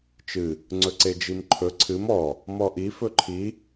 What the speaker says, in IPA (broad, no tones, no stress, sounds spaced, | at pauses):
t͡ʃ ɨ | ŋ͡ǀ ɵ ǀ e d͡ʒ i m ǃʰ ɵ ǀʰ ɨ m ɔ | m ɔ ʔ i f ɵ ǃʰ i